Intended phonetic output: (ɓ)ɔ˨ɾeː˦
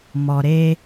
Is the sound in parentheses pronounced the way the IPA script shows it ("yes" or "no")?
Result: no